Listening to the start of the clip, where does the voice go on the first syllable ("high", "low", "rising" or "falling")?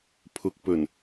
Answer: low